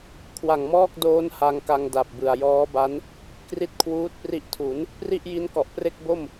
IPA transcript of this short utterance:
kʰ w a˨˩ ŋ m ɔː˥˩ k̚ d oː˦˥ n h a˧ ŋ k a˧ ŋ d a˨˩ p̚ b ɯ˨˩ a̯ j ɔː˦˥ b a˦˥ n | k r i˦˥ t̚ kʰ w uː˦˥ t̚ p r i˦˥ ʔ tʰ u˩˦ n | p r i˥˩ ʔ j i˦˥ n k ɔ˨˩ ʔ p r e˥˩ k̚ b o˥˩ m

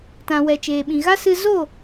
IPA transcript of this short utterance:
t ã˨ w ɛ˨ t͡ʃ eː˨ ɓ ĩ˨ ɣ a˦ s ɨ˧ z o˦˨

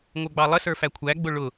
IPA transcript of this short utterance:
ŋʷ ə˞ ɡ͡b ɑ lˠ ə s ə˞ f æ kʷʰ æ ɡ͡b ʊ ɭ ʊ

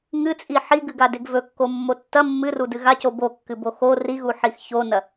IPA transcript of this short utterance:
ŋ ɨ t͡sʼ i ħ i ɡ ɨ ɡ a d e ɡ v ɵ kː o mː o tː ɐ mː ɨ r u d ɨ ɣ a c o b o kː ɨ b o x o r i ɣ u ħ i x ç o n ɐ

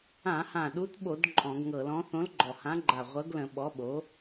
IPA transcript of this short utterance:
ã˧˩˧ h ã˨˩ ɗ u˨˥ t ɓ o˧˩˧ d ǃʼ ɔ̃˧˩˧ ɡ ŋ ɤ˧˩˧ l ɔ̃˨˥ θ õ˨˥ l ɡ͡ǃ ɔ˨˩ h ã˨˥ ɡ͡ǃ a˨˩ ʁʷ ɤ˨˥ ɡ l ə̃˧˩˧ ɓ ɔ˨˥ ɓ o˨˥

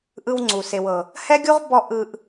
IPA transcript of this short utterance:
ʔ ɯ˧ w ŋ͡ǀ u˨ s e˨ w ɤ˨ | h ɛ˦ ɡʲ u˦ ʁ b ɔ˧ ʔ ɯ˧ ʔ

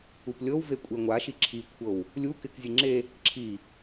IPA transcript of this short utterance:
u p lʲ ɤ w v e kʷʼ e ŋʷ a ʃ i ǁʰ i kʷʰ ɤ w | lʲ u k ɪ k zʲ ɨ ŋ͡ǁ e | ǁʰ i

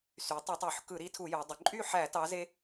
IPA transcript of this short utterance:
s y˩˧ tˤ u˧˩˧ tˤ o˧˩˧ ħ k ɯ˧˩˧ ɾ i˨˥ tʰ u˧˩˧ j o˩˧ dˤ ø˩˧ ǃʼ y˥˨ ħ æ˧˩˧ t ɑ˨˥ z e˦

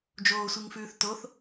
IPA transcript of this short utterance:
d͡ʒ oː sʷ i ŋ f ʉː θ t o θ

